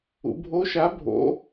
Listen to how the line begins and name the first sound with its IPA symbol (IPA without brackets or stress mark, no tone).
ṵ